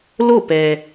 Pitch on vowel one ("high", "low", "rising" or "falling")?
falling